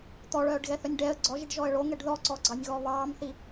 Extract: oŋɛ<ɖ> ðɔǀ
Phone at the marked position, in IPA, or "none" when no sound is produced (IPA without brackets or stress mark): ɖ